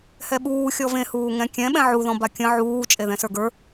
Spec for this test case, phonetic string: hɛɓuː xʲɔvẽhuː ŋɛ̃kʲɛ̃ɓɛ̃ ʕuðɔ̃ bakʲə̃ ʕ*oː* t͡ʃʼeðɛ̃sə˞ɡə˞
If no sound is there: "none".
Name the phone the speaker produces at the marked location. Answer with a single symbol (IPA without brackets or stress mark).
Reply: uː